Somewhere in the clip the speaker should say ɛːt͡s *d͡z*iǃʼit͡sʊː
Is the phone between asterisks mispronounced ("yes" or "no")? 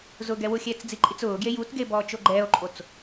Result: no